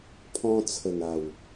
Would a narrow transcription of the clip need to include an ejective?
no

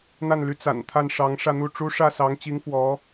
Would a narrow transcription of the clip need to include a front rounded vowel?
yes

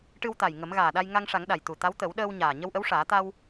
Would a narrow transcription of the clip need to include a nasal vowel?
no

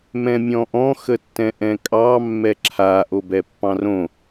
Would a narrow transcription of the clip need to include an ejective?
yes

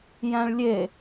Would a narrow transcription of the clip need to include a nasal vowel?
yes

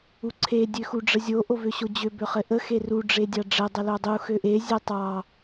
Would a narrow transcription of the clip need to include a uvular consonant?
yes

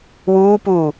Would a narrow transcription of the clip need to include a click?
no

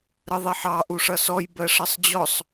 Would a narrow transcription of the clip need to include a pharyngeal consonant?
yes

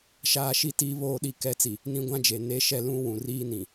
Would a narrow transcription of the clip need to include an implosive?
yes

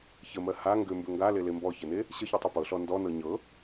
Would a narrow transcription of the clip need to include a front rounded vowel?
yes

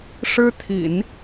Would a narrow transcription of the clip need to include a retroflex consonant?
yes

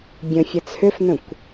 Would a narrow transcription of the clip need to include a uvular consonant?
no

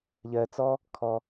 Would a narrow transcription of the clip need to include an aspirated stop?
yes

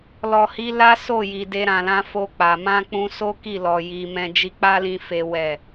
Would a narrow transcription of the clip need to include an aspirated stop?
no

